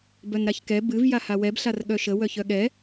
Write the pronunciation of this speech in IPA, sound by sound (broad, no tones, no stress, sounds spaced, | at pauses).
b œ n ɾ a ç k ɛ b ɨ v j a h a w ɛ b ɬ a r ɠ œ ʃ ə w œ ç œ ɠ ɛ